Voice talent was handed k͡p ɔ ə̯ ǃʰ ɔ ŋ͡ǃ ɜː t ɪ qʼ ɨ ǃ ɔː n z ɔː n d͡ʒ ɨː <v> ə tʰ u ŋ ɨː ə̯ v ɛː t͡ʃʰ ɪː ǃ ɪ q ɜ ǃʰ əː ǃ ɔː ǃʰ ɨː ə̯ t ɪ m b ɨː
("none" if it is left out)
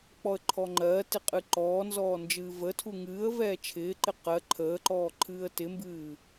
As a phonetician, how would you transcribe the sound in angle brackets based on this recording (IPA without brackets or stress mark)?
v